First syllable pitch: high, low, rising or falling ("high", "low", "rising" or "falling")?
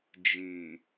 low